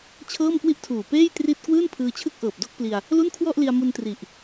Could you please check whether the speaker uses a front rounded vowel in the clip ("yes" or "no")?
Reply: no